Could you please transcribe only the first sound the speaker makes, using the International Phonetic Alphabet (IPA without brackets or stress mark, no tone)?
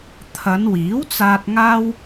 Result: t̪ʰ